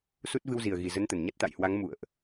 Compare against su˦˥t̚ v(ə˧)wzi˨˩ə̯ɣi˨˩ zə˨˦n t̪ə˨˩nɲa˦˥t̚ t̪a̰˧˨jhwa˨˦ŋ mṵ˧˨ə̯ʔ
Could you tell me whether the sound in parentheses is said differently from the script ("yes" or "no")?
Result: yes